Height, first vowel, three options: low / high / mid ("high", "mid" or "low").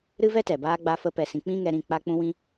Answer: high